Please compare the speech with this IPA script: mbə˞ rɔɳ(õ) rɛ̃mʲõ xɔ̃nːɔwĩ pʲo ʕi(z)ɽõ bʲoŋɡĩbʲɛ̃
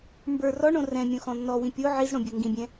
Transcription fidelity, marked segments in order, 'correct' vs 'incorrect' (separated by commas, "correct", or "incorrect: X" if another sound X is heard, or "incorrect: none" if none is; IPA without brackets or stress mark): correct, correct